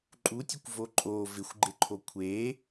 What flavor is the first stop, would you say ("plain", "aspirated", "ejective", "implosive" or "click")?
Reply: click